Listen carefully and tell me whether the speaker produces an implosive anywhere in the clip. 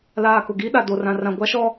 yes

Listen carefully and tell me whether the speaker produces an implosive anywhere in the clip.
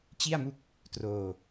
no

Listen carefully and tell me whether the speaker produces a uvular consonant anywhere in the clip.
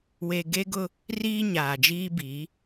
no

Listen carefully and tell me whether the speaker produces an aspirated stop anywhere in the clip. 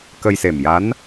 no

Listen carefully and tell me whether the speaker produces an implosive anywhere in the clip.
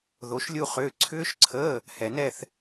no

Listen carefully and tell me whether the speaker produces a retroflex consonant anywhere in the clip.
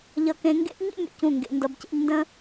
no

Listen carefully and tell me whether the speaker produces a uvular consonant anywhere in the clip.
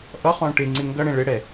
yes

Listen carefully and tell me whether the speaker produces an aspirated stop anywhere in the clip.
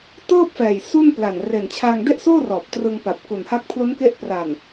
yes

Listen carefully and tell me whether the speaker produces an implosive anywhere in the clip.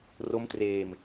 no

